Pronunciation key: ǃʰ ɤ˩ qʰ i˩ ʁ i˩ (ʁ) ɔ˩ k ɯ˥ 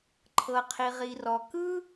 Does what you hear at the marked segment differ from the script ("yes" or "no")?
yes